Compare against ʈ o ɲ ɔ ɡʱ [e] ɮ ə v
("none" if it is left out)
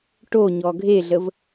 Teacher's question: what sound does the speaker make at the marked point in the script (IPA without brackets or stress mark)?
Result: e